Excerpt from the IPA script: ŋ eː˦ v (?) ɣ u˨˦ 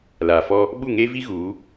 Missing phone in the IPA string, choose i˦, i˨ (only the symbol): i˦